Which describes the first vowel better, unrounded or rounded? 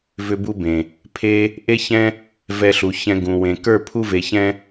rounded